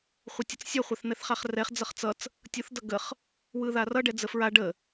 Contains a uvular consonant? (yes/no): yes